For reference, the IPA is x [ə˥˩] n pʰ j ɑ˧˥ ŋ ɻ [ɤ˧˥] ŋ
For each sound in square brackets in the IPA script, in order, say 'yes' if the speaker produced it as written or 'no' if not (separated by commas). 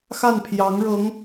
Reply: no, yes